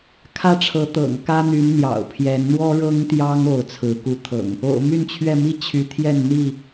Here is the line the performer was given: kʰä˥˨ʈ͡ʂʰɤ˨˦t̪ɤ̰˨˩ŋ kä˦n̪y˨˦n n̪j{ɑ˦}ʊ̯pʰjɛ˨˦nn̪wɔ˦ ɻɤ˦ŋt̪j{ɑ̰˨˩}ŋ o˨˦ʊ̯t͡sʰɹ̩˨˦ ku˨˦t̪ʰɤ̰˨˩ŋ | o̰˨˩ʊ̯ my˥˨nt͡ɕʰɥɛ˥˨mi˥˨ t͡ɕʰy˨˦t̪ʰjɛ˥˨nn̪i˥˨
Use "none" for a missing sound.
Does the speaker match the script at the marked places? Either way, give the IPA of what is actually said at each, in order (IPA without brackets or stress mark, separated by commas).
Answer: ɑ̰˨˩, ɑ˦